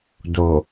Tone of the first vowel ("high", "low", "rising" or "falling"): low